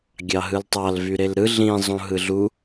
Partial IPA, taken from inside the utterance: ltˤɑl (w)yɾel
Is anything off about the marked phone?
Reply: yes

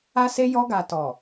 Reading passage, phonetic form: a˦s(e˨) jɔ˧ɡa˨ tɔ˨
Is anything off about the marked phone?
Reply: yes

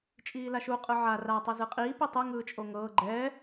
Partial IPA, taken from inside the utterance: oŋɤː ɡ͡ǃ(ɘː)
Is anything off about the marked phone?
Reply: yes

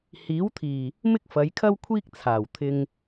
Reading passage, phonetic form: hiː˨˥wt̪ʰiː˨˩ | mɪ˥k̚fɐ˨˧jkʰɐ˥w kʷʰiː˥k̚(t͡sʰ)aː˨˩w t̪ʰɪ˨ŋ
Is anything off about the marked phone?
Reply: no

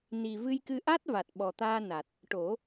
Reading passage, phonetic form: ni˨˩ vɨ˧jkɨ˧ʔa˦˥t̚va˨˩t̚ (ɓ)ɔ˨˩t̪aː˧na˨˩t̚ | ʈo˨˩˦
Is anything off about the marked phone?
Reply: no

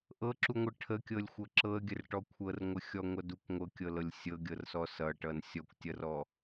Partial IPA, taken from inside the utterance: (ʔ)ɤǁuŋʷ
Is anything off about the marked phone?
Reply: no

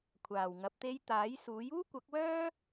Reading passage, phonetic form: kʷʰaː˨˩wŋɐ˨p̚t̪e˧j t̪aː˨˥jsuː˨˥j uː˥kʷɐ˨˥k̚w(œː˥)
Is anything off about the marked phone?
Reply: no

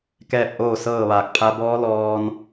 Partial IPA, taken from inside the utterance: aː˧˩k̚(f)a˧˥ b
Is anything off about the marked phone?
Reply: yes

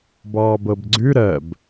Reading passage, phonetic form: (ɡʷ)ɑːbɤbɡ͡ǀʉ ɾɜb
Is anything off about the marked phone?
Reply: yes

